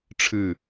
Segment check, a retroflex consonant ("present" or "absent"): present